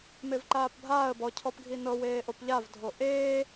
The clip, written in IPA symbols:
m e v ǃ aː p bʱ aː ə̯ b ɔ cʰ ɔ p ɡʱ i n ɤ w eː ʔ o p ʎ a v dʱ o ʔ eː

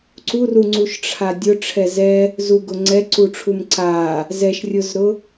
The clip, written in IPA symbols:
ǀ u r u ŋ͡ǀ u ʃ ʈ͡ʂʰ a dʲ ʊ ʈ͡ʂʰ ɛ z ɛ | z u ɡ ʊ ŋ͡ǀ ɛ ǀ u ʈ͡ʂʰ u m ǀ a | z ɛ ʃ rʲ ʊ z ɾ ʊ

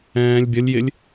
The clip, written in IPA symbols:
ɛ̃ː lʲ bʲ ə lʲ j ɪ lʲ

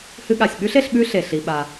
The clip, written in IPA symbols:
h ɨ˧ ɠ a˩ sʲ ɓ ʉ˥ ɬ e˧ ɬ ɓ ʉ˥ ɬ e˩ ɬ i˩ ɓ a˩

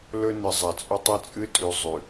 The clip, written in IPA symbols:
l ɵ˦ n ɨ˨ zˤ a˨ t͡sʼ ɵ˦ tˤ ɨ˦ t͡sʼ ɨ˦ tʼ ʉ˨ zˤ ʉ˨

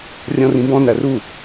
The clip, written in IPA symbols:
rʲ ɔ̃ r ĩ b ɔ̃ n æ r u

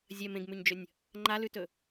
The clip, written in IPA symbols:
zʲ ɐ m ẽ ɡ m ʉ ɲ d͡ʒ ɵ nʲ | ŋ͡ǃ a l ʉ t ɵ

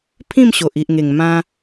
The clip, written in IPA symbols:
pʰ ĩ˥˧ m ɕ o˨ ʔ i˨ ʔ ŋ e˨˩ ŋ m ã˧

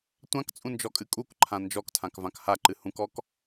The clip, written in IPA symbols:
tʷ ã k t͡sʼ ũ n d͡ʒ ɔ kʼ ɨ kʼ u k ǃʰ ã n d͡ʒ ɔ k tʰ ã k v ã k h a ǃ ɨ h ũ k ɔ k

